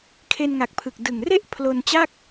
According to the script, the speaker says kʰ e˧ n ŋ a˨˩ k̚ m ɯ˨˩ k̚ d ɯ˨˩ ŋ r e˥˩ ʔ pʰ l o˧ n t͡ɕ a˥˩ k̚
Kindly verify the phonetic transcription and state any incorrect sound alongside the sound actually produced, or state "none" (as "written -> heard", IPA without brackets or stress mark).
m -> pʰ